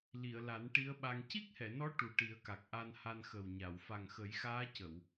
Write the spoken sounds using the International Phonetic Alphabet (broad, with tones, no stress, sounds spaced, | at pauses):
l i˨˩˨ ə̯ l a˨˩˦ n ʈ i˧˥ ə̯ ɓ a˧ ŋ c i˦˥ k̚ h ɛ˨˩˨ n ɔ˧˥ ʈ u˨˩ ʈ i˨˩˦ ə̯ k a˨˩ k̚ ʔ a˧ n h a˧ n x ə˨˩ w ɲ a˨˩˨ w f a˨˩ ŋ x ə˨˩˦ j x aː˧˥ c ə˨˩˨ w